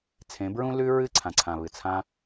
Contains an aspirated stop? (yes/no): yes